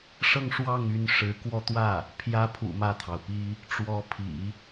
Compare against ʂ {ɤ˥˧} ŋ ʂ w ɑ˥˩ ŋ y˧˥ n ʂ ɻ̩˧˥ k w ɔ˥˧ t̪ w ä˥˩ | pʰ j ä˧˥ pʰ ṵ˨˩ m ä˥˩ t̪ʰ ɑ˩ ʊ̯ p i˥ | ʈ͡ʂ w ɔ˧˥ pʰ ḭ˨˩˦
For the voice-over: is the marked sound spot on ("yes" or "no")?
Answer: yes